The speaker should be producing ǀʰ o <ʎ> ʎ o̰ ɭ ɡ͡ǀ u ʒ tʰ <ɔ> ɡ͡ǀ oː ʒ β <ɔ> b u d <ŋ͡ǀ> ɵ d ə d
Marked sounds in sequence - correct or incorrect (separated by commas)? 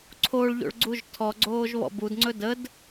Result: incorrect, correct, incorrect, correct